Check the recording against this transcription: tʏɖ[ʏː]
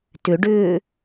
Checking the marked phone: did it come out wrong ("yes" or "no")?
no